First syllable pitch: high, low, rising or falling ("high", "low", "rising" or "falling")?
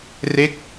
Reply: falling